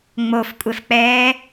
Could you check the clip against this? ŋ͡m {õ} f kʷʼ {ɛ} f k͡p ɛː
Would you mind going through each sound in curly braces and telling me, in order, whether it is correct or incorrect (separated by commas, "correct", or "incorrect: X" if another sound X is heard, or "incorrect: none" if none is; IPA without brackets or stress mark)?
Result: incorrect: o, correct